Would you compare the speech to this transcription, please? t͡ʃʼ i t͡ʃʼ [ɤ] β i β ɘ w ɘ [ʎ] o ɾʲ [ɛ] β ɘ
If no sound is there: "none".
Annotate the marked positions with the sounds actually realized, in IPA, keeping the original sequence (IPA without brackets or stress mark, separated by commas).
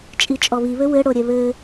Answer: ɔ, ɽ, ɛ